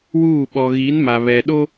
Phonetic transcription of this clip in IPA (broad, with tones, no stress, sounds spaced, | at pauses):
w uː˦˨ ɓ ɔ˨ ɣ i˨˦ n m a˨ β ɛ˨ ɗ o˦